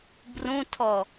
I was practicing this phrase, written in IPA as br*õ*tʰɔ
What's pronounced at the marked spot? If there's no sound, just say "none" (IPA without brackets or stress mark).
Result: ũ